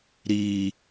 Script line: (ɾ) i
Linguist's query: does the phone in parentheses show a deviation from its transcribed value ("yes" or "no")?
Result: no